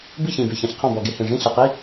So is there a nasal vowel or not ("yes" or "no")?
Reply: yes